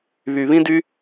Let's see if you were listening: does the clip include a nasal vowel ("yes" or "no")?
yes